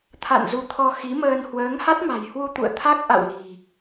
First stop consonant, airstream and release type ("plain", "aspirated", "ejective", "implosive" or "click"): aspirated